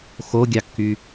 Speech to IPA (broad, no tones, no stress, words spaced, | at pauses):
xoɡʲɑkːy